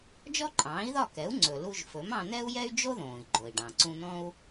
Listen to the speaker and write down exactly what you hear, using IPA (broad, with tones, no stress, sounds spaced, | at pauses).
d͡ʒ ɔ˥ ǃʼ ɑ̃ː˩˥ i̯ ð ɒ˥˩ k ɛ˩˥ u̯ ŋ͡ǀ ɵ˩ l u˧ ʒ f ɵ˩˥ m ɑ̃˧ n̪ ɛ˥ u̯ j ɛ˥ y̯ d͡ʒ o˥ ð õː˩ i̯ ɡ͡ǃ o˩ i̯ ɖ ɑ̃˩ ǀ ũ˧ n̪ ɔ̃˥ u̯